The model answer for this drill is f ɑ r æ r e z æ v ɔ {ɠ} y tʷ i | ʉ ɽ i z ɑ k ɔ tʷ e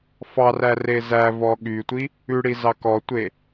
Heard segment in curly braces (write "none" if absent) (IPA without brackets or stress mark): ɠ